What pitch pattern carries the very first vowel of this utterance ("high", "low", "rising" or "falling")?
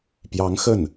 rising